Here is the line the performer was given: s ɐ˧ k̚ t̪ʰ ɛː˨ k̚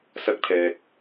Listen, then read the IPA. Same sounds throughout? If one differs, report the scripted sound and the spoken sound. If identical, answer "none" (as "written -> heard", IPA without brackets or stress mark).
none